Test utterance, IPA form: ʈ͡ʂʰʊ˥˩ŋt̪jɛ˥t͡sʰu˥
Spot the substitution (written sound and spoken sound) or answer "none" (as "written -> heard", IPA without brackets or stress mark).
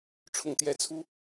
none